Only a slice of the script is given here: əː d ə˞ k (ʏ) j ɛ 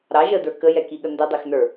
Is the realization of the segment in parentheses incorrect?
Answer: yes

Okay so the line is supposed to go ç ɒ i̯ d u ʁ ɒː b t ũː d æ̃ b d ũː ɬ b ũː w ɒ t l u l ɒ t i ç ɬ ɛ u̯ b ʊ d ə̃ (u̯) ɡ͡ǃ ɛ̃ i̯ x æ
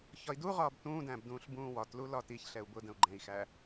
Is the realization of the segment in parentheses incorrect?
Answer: no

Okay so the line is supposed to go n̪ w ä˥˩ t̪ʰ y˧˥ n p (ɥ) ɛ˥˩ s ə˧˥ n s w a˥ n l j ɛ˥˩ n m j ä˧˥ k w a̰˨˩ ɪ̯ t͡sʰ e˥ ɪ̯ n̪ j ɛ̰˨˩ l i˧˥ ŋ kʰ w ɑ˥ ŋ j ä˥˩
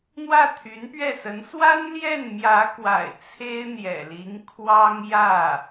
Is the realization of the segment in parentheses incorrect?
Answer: no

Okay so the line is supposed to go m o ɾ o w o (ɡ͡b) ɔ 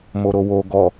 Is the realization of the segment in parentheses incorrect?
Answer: yes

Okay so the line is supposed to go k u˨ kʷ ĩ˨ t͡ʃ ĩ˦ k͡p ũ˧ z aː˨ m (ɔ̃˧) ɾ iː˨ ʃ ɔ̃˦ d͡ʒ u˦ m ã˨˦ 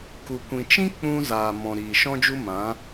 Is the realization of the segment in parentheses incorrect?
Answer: yes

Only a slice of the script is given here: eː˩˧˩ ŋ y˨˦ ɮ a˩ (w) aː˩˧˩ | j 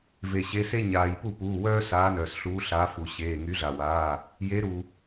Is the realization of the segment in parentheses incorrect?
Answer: no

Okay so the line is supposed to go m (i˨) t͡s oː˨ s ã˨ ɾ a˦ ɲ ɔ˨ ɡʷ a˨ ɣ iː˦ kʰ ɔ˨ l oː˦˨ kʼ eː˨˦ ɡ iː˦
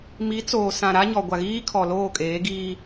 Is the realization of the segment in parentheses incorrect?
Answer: yes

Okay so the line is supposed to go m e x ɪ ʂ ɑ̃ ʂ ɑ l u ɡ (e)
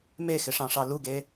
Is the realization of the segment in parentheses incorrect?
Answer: no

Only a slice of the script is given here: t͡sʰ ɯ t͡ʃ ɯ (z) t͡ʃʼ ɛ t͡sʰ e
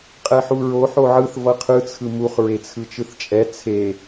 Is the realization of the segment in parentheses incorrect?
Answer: yes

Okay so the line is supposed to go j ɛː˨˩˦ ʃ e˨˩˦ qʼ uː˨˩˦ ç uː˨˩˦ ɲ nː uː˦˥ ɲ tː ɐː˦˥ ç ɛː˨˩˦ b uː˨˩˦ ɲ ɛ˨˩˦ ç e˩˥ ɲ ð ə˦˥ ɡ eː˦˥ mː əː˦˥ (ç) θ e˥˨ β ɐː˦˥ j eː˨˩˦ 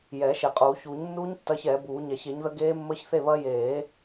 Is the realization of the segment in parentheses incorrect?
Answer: no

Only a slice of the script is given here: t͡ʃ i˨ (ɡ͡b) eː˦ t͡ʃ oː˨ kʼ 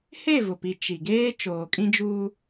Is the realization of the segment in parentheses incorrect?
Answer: yes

